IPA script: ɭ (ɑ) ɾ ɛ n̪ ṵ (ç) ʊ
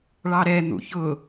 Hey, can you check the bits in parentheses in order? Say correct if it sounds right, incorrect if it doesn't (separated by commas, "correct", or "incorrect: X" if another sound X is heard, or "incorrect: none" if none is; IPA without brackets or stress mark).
correct, correct